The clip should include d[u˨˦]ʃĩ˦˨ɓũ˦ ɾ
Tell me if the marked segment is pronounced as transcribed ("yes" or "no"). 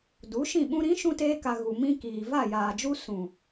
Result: yes